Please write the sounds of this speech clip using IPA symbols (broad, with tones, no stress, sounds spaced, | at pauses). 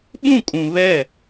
ɓ ũ˦˨ kʼ ũ˨ β ɛ˦˨